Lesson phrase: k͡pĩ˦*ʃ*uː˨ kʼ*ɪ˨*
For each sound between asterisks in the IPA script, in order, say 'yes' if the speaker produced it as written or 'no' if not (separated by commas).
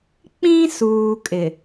no, yes